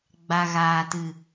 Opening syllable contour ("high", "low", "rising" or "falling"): low